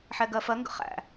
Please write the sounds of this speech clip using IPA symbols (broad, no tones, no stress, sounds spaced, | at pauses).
ħ ɛ ɡ ɜ f ɜ ŋ ɡ ə̰ χ æ̰